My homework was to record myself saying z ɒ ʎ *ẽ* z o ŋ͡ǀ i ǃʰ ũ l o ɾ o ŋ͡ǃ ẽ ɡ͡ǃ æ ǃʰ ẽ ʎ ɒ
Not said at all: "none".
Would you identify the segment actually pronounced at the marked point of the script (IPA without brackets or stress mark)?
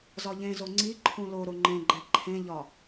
ẽ